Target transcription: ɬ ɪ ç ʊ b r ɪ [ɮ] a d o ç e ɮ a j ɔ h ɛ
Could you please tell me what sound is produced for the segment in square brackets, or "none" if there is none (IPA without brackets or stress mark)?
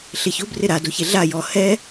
ɾ